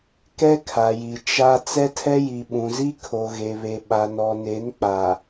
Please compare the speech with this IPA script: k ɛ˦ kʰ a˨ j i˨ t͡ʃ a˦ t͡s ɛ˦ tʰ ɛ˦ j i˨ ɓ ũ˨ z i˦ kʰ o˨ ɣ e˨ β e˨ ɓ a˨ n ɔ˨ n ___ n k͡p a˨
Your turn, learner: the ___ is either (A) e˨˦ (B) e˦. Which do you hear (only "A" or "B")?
A